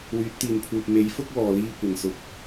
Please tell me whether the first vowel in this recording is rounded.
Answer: yes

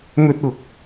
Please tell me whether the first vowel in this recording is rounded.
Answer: yes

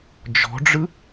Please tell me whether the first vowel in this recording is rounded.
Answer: yes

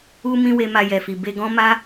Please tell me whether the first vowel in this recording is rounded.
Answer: yes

